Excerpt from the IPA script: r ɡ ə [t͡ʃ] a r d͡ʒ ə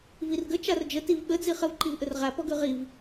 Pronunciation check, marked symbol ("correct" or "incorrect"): correct